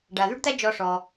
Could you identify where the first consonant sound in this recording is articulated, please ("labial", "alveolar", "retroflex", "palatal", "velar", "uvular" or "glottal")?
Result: retroflex